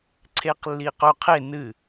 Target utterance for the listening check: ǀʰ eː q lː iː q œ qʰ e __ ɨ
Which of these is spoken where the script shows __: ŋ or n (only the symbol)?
n